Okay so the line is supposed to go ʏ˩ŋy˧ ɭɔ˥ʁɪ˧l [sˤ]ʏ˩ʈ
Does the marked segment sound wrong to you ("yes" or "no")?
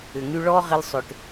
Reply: no